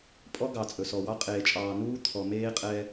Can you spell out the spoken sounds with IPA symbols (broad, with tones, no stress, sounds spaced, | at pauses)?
pʼ ɔ˦ ɡ ɑ˨ t͡sʼ ɵ˨ s ɔ˨ w ɑ˦ qʼ eː˨ t͡ʃʼ ɑː˨ n uː˦ t̪ʰ ɔ˨ m eː˦ qʼ ɛ˦